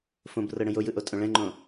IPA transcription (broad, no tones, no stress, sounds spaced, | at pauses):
f õ b r ɤ ɽ ə̃ j o j ɯ ʔ o tʼ õ ɭ ɛ̃ ŋ͡ǃ õ